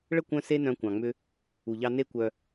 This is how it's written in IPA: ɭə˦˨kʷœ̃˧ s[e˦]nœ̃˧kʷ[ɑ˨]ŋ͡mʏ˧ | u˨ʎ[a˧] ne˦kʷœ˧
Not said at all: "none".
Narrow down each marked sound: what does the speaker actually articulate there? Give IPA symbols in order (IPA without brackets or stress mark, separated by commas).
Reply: e˦, ɑ̃˨, ɑ˧